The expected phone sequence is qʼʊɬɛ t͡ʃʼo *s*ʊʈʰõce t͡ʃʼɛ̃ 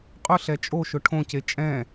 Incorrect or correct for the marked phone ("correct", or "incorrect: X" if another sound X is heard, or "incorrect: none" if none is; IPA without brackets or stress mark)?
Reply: incorrect: ʃ